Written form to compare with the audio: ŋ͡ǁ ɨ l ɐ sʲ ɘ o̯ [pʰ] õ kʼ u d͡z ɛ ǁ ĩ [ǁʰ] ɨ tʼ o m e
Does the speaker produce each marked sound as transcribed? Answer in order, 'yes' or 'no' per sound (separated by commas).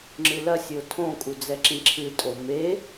no, yes